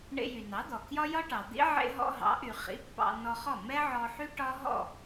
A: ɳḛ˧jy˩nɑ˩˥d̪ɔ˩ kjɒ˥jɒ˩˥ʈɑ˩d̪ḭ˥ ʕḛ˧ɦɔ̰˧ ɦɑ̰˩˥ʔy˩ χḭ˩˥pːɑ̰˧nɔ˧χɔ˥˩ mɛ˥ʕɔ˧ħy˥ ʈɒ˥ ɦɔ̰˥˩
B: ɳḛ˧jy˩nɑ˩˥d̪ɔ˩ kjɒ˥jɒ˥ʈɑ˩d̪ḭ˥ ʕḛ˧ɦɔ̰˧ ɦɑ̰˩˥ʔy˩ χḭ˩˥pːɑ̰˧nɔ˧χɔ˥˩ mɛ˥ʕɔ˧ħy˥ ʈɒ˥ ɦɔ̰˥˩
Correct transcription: B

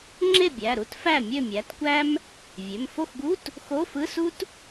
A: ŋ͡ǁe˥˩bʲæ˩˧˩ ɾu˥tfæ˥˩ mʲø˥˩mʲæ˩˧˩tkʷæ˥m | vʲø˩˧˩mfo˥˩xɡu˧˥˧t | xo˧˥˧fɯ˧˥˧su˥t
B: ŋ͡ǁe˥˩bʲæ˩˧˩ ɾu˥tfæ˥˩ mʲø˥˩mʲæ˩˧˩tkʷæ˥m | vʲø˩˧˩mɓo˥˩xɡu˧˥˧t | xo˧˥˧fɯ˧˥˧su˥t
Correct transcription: A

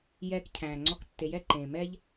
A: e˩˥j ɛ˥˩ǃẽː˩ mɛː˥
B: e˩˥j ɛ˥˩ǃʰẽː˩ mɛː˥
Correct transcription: A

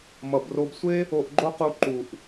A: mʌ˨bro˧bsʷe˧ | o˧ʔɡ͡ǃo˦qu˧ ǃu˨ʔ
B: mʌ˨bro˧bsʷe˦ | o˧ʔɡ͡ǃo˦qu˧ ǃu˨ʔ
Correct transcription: B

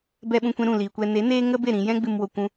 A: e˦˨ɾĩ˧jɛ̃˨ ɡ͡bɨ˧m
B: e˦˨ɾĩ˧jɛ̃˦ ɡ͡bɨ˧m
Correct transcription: B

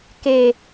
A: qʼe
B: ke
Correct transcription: B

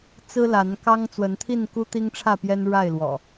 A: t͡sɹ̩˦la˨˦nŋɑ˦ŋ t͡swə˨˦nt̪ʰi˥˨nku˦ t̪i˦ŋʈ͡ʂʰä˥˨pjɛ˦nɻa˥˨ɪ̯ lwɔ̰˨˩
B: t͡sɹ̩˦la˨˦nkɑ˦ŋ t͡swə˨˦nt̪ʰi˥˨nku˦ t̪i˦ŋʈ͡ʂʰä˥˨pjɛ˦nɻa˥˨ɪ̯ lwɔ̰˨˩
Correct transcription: B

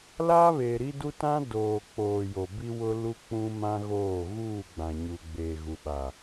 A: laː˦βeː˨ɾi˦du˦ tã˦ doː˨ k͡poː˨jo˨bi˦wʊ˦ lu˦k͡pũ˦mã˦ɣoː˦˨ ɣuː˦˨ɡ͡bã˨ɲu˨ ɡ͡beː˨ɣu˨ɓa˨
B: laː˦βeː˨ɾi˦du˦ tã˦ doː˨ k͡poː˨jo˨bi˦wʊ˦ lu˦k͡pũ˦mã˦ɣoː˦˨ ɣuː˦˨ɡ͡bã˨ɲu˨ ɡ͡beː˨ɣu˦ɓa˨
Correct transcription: A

